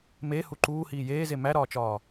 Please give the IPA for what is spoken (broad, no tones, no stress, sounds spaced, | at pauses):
m e h u ǃ uː h iː j eː z e m æ ɾ ɒː t͡ʃ ɒː